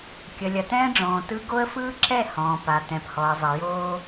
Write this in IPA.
kʲə˨lʲɐ˨ tɛ̃ː˦ɖ͡ʐɔ̃ː˨tɯ˦ ɡo˦ə̯fɯː˦ǁɛ˦˨ hɔ̃ː˨pa˨ tɛ̃˨phɔ˨ə̯zˤə˨ joː˦

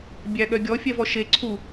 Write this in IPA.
bʲæɠœɡʲɔ fʲɛvɔʃe ǀʰu

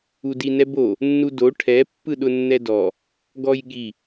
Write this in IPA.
udinɛbo | nːudo ʈʰɛ pːɯɗʊnːɛdɔ | ɡɔjɠi

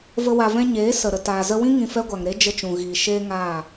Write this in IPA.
və˧ wa˨vɛ̃˧ ɲeː˨˦ sə˨ɾə˨ taː˨zə˦ wĩ˦ ŋĩ˧fɛ˦ɡʷa˨ŋ ɾe˦d͡ʒə˧t͡ʃũ˨ɣiː˨ ʃeː˦ŋaː˦˨

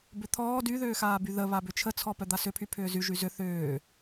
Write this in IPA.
bʏt̪ʰɔː dyðʏːxaː byðə βabʏt͡ʃʰət͡sʰɔ pœd̪asʏpʰy pʰʏːzy ʒyzʏ θʏː

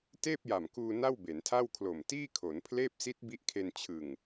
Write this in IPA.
teː˥˩p̚ja˨˩mkuː˧ na˥˩wbe˩˦ntʰa˥˩wkʰlo˨˩m tiː˥˩kʰo˩˦npʰleː˥˩p̚ si˦˥t̚bi˦˥ʔkʰe˧n t͡ɕʰɯ˨˩ŋ

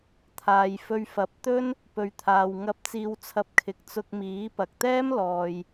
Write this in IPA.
t̪ʰaː˨jfɵ˧ɥfɐ˨˥p̚ t̪ɵ˥n | pɵ˨ɥt̪ʰaː˨wŋɐ˧p̚ t͡siː˧wt͡sʰɐ˧p̚ kʰɪ˨k̚ t͡sʊ˧k̚miː˨˥ pɐ˨k̚t̪ɛː˥m lɔː˨j

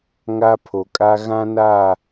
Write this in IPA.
ŋa˦pʰo˨kʼa˦ ɣã˦na˦˨

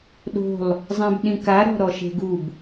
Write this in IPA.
ɗo̤lˠ | zˤɛ̃bɗĩka ɾɔ̤ɾɔʃe̤ɡub

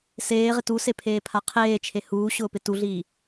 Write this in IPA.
seːʁɪ tusepʰeːpʰa qʰeːt͡ʃʰe huːɕʊːpɪ tuɮiː

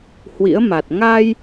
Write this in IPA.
hwḭ˧˥ə̯ma˨˩t̚ ŋa˧j

